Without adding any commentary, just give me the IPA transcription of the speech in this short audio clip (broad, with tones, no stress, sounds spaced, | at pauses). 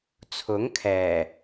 t͡sʰ ʊ˨˥ ŋ kʰ ɛː˨˩